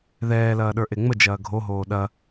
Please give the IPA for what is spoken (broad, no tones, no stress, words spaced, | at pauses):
ðɛːlɐːɗə˞ʔe ŋ͡məd͡ʒɐː ɡʱoɦoː ɗɐ